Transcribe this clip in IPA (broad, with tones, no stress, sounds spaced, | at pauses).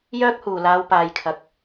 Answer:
j œː˥ k̚ h uː˨˩ l aː˨˧ w p aː˨ j kʰ ɐ˨ k̚